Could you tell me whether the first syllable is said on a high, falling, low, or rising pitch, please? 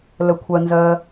low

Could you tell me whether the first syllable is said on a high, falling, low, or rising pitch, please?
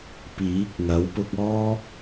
rising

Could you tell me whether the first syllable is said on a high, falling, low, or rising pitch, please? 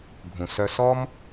low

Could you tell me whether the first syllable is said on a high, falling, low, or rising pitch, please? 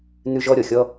high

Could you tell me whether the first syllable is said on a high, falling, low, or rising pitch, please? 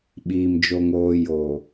low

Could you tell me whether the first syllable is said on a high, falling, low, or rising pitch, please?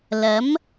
rising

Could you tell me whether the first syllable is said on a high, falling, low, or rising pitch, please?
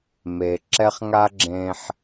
low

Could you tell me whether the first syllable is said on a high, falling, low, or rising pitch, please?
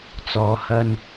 low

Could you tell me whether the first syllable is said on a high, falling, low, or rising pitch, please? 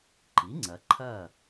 rising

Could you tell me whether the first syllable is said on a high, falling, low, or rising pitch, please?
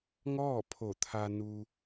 falling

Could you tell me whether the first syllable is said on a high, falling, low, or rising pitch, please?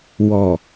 low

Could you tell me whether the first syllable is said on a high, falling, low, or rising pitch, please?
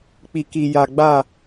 low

